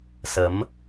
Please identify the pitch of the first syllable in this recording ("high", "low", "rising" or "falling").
rising